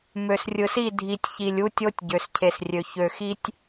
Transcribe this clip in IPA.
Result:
m ø˨ s rʲ ɯ˨ s i˦˨ dʱ i˨ tʲ ç i˨ lʲ u˦ tʲ o˦ tʲ ɟ ø˨ s cʰ e˨ s rʲ ø˨ ç ø˨ x i˦ tʲ

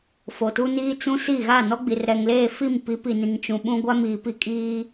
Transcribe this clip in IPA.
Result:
f o˨ t u˦ n iː˦ t͡s ũ˦ s i˦˨ ɣ a˦˨ n ɔ˦ ɡ͡b i˨ r ɾ ɛ˨ ŋ l eː˦˨ f i˦˨ m p i˨˦ p i˨ n ĩ˨ ŋ t͡ʃ ũ˨ ɓ ũ˦ ɡʷ a˦ m iː˨ p i˦ kʼ iː˦

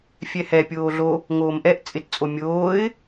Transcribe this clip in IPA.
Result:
fʲ ɛ h ɛ pʲ oː ɮ o | ŋ oː m ʔ ɛ ʔ t͡sʼ ɪ t t͡sʼ o mʲ oː ɪ̯

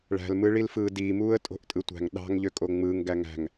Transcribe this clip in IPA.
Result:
ɭ æ̤ l m ɯ ɭ i l f ɯː d iː m uː ə̯ tʼ o̤ ʔ tʼ ɯ tʷ æ̤ ŋ ɗ ɑ̤ ŋ ʎ ø kʼ o ŋ͡m ɯː ŋ ɡ æ ŋ æ̤ ŋ

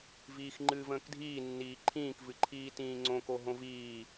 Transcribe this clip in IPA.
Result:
v iː x ŋ͡ǃ ɨː v ə̃ː k dʱ iː nː iː ǃʰ ĩː k v ɨ ǃʰ iː t ĩː ŋ͡ǀ õ k o ɦ õ v iː

